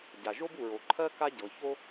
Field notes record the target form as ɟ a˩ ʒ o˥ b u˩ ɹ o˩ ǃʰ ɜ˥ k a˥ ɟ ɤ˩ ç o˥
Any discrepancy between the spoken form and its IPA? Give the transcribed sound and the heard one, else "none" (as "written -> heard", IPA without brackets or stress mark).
none